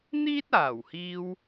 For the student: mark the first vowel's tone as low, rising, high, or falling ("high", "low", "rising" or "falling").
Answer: high